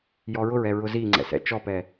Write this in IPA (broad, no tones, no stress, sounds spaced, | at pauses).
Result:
j ɔ ɹ ʊ ɹ ɛ ɹ ʊ z i ŋ͡ǀ ɛ̰ s ɛ̰ t͡ʃ ɔ p ɛ